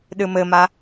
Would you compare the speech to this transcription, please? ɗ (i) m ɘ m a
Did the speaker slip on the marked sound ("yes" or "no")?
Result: yes